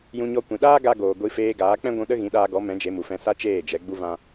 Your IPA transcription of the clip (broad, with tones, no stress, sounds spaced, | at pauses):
j ũ˧ ɲ ɔ˧ kʷ ĩ˨ ɗ aː˦ ɡ a˧ ɡ oː˨ ɡʷ i˧ f eː˧ ɡ aː˨˦ k͡p ɛ̃˦ ɡʷ ũ˧ ɗ ə˦ ɣ ĩ˨˦ ɗ aː˧ ɡ ɔ˨˦ m ɛ̃˨˦ d͡ʒ e˨˦ m u˨ f ɛ̃˧ s a˦ t͡ʃ eː˦˨ d͡ʒ ɛ˨˦ ɡ͡b u˦ v ã˦